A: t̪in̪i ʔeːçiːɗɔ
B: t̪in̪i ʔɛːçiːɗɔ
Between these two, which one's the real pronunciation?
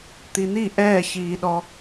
B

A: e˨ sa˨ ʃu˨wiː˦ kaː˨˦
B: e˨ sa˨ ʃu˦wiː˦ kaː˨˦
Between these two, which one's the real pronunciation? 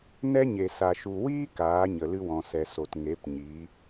A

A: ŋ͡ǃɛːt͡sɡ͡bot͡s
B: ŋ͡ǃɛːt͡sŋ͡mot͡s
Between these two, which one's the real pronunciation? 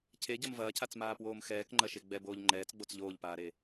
A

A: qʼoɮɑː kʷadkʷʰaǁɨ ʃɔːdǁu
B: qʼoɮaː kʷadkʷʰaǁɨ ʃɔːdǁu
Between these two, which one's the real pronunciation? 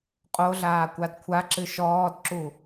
B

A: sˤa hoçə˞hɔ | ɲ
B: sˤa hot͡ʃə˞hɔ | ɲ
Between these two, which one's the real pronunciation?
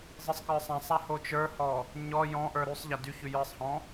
B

